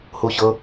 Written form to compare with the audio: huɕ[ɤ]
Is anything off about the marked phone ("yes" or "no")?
no